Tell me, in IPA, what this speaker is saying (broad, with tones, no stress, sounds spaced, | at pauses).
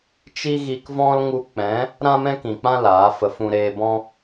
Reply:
t͡ʃ i˦ ɣ i˧ k v ɔ̃˦ l ŋ u˧ k͡p ɛ̃˨˦ | ɾ ã˦ m ɛ̃˦ k ĩ˨ k͡p ã˦ l aː˨˦ f ə˧ f ũ˧ ɾ eː˧ b ɔ̃˦